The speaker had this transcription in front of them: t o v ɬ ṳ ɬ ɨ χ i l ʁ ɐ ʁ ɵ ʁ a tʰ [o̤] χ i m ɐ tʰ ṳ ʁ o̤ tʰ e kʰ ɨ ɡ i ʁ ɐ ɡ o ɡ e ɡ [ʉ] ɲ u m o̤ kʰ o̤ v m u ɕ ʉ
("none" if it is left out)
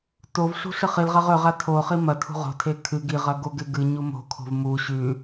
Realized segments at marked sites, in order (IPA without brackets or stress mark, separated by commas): o, ɨ